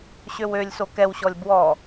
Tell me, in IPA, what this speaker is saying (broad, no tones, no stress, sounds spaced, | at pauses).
ɕ ø w ø lʲ s o k ɛ w ɕ ɔ lʲ b w ɔ